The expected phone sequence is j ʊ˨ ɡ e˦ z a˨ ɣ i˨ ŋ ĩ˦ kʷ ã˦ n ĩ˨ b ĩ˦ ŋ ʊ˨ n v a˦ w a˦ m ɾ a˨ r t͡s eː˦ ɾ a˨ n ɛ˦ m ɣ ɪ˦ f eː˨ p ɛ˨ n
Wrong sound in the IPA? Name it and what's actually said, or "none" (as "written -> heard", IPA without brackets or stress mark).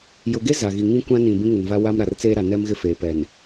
none